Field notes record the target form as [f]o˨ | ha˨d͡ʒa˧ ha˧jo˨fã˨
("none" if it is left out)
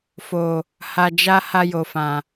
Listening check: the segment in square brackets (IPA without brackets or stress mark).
f